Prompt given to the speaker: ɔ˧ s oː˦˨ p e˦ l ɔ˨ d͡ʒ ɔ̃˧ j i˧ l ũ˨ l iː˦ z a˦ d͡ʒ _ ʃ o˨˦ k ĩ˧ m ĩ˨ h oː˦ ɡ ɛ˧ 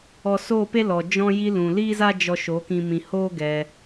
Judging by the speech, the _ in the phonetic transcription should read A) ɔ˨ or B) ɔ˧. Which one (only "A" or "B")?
B